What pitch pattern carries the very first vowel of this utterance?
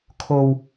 low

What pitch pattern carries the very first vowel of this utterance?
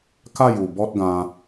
falling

